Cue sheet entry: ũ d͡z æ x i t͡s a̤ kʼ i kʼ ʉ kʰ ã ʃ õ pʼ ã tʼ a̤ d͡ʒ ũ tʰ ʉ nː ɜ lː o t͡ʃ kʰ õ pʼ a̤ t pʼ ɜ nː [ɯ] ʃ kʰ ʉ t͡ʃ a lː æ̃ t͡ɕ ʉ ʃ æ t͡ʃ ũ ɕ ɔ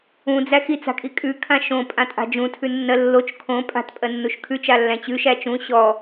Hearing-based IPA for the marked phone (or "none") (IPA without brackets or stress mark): u